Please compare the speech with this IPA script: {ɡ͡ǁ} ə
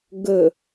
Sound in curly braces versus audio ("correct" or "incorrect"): incorrect